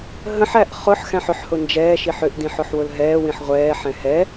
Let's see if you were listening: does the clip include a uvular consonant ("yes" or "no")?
yes